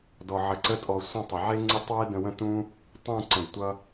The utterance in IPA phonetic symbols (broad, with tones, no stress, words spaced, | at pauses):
dɔ˧ʕə˧ǀə˦tʼɔ˧ sʷə̃˦ tˤə˨ʕe˦ŋ͡ǀə˦tˤwe˦ də̃˧wə̃˦ tũ˦ | tˤũ˦˨ ǀə̃˨dtʷʌ˧